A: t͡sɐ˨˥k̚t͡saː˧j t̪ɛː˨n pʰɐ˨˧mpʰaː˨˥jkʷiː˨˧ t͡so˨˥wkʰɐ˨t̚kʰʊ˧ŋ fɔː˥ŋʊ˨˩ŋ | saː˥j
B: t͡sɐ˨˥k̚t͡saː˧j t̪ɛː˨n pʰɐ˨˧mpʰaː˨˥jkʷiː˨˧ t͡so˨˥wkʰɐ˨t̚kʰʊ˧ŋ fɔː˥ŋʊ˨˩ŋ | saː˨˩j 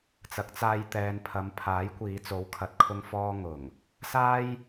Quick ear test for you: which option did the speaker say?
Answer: A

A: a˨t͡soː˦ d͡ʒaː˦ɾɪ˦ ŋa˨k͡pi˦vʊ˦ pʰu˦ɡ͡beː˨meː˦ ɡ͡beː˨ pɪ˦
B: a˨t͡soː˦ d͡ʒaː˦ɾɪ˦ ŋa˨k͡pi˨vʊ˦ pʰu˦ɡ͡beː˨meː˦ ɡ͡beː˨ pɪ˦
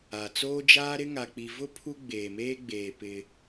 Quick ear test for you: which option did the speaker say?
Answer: B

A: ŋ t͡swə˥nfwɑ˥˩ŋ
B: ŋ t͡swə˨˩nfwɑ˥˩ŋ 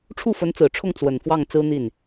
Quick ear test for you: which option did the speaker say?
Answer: B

